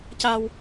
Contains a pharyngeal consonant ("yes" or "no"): no